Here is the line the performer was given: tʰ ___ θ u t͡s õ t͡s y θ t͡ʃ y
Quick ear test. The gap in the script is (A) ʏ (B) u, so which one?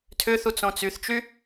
A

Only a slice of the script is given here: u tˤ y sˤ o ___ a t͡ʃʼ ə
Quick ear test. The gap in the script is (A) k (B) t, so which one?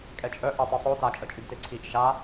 B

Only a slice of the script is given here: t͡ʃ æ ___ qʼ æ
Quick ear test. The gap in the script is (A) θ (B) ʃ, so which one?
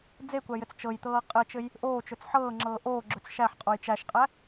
B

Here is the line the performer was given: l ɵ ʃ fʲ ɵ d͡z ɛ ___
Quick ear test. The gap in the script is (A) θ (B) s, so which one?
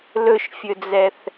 A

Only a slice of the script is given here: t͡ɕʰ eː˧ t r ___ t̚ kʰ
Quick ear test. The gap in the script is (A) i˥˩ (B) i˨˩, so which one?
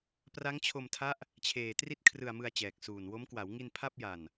A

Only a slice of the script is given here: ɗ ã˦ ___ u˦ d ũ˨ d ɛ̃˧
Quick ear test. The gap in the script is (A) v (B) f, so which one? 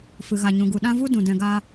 A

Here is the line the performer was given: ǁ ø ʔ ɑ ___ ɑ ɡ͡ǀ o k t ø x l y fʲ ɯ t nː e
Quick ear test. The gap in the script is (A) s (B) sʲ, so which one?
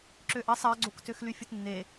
A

